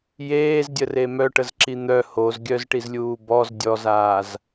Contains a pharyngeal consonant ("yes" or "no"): no